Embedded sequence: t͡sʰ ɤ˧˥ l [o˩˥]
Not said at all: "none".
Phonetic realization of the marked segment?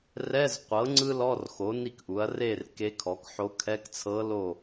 o˥˨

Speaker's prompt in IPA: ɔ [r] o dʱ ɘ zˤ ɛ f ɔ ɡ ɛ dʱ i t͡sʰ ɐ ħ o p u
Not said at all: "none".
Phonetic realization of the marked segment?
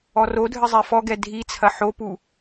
r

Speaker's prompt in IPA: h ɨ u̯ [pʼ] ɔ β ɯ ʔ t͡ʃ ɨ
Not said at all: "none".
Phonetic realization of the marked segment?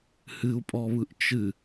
pʼ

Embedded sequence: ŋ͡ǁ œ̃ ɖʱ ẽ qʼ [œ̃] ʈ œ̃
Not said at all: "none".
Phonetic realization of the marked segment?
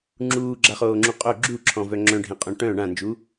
œ̃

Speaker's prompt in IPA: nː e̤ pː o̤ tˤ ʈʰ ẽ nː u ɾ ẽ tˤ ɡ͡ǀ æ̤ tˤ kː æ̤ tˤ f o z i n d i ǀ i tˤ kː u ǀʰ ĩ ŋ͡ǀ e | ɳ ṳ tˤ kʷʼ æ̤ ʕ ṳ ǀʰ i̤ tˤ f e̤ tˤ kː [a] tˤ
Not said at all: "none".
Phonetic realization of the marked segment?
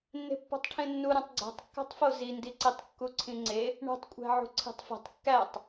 æ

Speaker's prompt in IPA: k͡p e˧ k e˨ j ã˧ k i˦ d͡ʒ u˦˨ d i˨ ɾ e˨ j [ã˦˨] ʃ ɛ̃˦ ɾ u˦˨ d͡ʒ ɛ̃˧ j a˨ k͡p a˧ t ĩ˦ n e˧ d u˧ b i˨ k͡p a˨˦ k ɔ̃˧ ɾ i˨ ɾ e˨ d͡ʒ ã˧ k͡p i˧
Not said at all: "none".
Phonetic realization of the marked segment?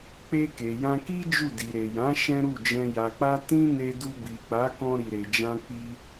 ã˨˦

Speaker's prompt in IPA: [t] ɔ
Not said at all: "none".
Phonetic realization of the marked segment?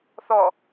θ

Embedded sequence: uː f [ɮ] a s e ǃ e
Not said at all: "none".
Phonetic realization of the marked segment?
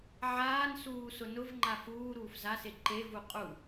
z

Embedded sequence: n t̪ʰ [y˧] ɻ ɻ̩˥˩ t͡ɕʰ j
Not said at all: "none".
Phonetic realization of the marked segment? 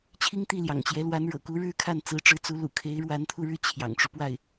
u˧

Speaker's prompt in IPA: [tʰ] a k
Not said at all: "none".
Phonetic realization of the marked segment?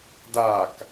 d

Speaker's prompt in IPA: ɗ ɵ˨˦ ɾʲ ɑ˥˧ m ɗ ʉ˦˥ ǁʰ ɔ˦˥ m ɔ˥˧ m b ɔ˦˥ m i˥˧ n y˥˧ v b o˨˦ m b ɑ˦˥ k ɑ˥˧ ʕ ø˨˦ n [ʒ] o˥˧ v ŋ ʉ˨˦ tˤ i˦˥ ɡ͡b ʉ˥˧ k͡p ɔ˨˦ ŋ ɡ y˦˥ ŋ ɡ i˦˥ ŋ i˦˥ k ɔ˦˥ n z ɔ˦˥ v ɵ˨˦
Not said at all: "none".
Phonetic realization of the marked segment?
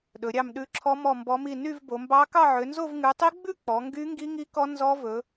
z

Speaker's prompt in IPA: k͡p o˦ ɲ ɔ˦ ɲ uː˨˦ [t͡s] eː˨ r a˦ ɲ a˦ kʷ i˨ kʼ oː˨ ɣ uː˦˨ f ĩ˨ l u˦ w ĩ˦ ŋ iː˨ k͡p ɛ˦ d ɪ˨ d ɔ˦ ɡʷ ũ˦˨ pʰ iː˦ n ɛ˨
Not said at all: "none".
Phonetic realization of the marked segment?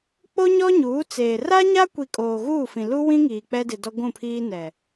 t͡s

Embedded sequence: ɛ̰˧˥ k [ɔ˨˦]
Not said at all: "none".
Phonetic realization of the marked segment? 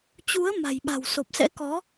ɔ˨˦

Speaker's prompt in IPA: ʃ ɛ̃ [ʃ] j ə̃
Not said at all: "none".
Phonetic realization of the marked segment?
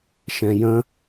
none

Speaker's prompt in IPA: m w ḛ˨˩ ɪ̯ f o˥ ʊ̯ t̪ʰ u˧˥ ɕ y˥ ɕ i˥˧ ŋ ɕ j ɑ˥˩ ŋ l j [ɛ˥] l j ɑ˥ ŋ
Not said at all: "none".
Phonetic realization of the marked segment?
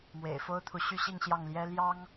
ɛ˥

